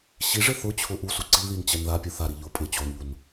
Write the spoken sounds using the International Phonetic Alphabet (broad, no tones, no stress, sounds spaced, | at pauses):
ɕ i ʐ ɪ θ ʊ t͡ɕʰ ʊ ʔ u s u ǀ i ð i n t͡ɕ ɛ n ð a pʲ o θ a ɾ i ʎ ʊ pʼ ɪ t͡ɕ o n ʎ u n